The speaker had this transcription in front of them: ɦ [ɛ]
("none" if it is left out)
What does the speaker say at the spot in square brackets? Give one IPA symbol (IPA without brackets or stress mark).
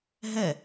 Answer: ɛ